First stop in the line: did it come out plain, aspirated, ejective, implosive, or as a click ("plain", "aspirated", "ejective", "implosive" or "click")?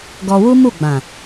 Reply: plain